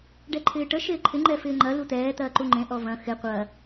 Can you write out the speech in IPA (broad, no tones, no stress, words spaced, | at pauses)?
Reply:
ɖɛǃʰɪːʈə ʃɪːǃʰɪ ŋ͡ǃɛfɪːŋ͡ǃɐ lut̪ɛː t̪ɐːǃuŋ͡ǃẽ ʔɔvɐ̃ xɪ qʷɐ